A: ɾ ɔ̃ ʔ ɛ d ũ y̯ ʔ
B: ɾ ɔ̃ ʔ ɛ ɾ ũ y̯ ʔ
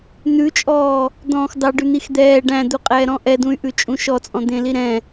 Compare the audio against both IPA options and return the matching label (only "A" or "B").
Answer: A